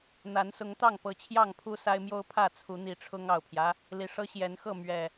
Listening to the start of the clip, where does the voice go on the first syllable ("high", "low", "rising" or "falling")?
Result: rising